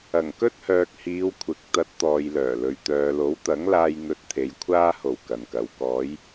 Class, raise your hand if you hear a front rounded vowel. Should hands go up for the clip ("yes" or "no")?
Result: yes